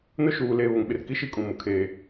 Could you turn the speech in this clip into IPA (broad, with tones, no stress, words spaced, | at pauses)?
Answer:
nʊ˦ʃuː˨leː˨ βʊ˨ŋɓɪ˨rki˦ʃi˦ kʼũ˨mʊ˨kʰeː˨